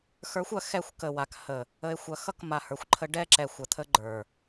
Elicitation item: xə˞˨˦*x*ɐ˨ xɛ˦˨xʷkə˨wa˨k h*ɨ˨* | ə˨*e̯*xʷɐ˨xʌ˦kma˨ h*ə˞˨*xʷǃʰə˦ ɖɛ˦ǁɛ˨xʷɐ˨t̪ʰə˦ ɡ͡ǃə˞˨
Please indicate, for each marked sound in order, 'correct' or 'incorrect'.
incorrect: xʷ, incorrect: ə˨, correct, correct

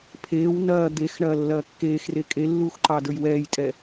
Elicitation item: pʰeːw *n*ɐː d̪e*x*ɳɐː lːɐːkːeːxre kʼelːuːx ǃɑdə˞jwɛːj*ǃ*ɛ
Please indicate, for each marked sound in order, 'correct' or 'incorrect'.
correct, correct, incorrect: tʼ

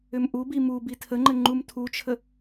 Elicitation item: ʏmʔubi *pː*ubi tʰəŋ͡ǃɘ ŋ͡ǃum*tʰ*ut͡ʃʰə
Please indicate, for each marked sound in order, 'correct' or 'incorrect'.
incorrect: m, correct

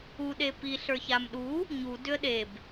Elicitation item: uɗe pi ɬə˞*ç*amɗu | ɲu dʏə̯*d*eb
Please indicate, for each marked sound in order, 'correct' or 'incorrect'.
correct, incorrect: ɗ

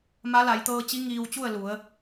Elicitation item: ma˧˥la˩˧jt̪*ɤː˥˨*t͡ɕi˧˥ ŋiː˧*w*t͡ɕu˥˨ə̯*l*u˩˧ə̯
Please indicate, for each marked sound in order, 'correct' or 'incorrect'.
incorrect: ɤː˧, correct, correct

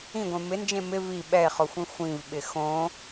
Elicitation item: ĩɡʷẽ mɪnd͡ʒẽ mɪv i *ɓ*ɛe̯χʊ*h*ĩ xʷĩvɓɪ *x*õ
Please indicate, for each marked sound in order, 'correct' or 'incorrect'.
correct, incorrect: xʷ, correct

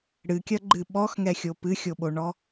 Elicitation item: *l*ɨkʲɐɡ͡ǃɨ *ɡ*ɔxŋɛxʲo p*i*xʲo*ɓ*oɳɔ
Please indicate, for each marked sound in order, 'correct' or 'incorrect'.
incorrect: ɽ, incorrect: ɓ, incorrect: ɨ, correct

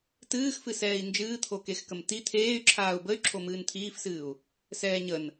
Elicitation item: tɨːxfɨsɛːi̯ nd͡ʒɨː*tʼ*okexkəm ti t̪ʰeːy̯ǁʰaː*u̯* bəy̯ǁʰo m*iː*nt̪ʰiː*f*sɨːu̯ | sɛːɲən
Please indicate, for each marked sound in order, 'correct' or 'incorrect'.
incorrect: t̪ʰ, correct, incorrect: ɨː, correct

